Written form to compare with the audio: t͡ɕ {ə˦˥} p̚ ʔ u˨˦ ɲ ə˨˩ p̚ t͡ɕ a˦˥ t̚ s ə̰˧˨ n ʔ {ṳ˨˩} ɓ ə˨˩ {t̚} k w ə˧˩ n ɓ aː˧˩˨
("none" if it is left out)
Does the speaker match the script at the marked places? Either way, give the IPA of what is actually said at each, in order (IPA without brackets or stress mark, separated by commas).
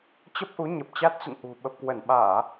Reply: ə˦˥, ṳ˨˩, p̚